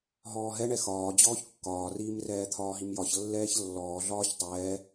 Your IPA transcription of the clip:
ɦɔːɦɛɳɛ xɒː d͡ʑɔːçkːɒːriːm rɛːt̪ʰɒːɦimjɒç lːɛːçlːɔːɮɒːç tˤɛː

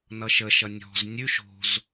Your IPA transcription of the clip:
nʌʃəʃʌ nʲɔ̤z nʲʉʃ o̤z

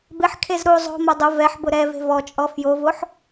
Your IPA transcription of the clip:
bɪħkʰez ɾu zˤo̤mo dˤʊ vɛħbʊ ɾɛve̤ vɔt͡ʃʼɔ fjovoħ

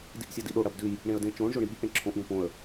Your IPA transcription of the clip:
diʔsʲɐdiɗo ɽɐbdʉj | ɳẽə̯dẽt͡ʃõɳ ʒoɳiɠiʔ ẽǁʰõʔ ɡõpõə̯

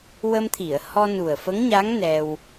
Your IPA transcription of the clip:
wə˧mt̪ʰi˨˩˨ə̯ hɔ˧nu˨˩ə̯fə˧˥ŋɲa˧˥ŋ nɛ˧w

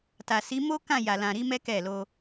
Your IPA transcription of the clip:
ta˨si˨˦mo˦ kã˦˨ja˨lã˨ɾi˨˦ mɛ˦kɛ˦˨lo˧

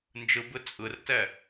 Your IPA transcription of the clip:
nd͡ʒɯbɯ t͡sʼɯrtɛ

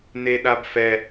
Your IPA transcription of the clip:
neɗabfɛ

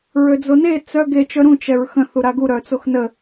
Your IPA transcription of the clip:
ɹød͡zone t͡sœ ɡe t͡ʃœɾũ t͡ʃɛɹxə̃ θuɾaɡu ɾœt͡soxnə

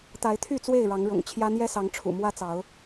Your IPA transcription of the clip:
t̪a˨˦ɪ̯t̪ʰy˥˨ t͡swe˥˨ɪ̯ɻɑ˨˦ŋɻʊ̰˨˩ŋt͡ɕʰjä˦ n̪jɛ˦sɑ˨˦ŋ ʈ͡ʂʰṵ˨˩mwä˦t͡sɑ˨˦ʊ̯

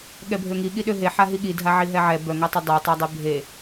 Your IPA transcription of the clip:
ɠɛbʱøŋiɠi ɗøɦeħa ɦiɠidʱa ʕiɦɛʕɛ bœŋatˤe dˤetˤa dˤebʱe

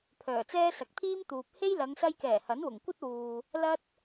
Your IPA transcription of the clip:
pʰœː˨˩t͡sɛː˥ sɐ˨˥k̚t̪ʰiː˥mt̪uː˨p̚ he˥jlɐ˨˧ŋ sɐ˧jkɛː˨˩ hɐ˨˥nwʊ˨˩ŋkʷɐ˥t̚wuː˨ | lɐ˥t̚

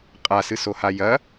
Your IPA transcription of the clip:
qʼasɨsoha jɐ

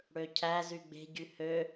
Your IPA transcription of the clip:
ɽøcʰæ zyɡ͡be̤ɟy hø

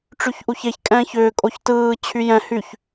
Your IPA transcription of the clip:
ʈ͡ʂyçʔuçeç kʼɛ̃ːçʏː kʼoçtɯː t͡ɕʰyjɛ̃ hyç

